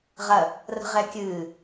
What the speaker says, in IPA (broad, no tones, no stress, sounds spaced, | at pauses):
ʁ ɐ | r ə̤ ʁ ɛ kʲ ɨː